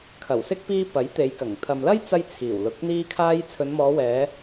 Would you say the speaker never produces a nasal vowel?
yes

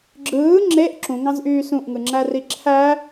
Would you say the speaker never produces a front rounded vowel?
no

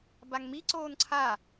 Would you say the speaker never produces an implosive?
yes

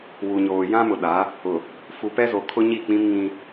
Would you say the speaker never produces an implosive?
no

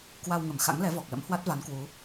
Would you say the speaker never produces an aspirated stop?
yes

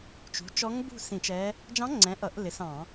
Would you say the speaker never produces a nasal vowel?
no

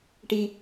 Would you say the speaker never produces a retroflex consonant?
no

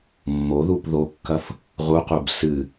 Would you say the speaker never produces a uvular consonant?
no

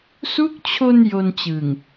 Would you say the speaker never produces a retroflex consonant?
yes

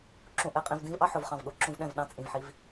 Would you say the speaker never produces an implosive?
no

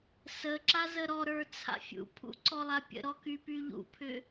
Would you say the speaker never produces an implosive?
yes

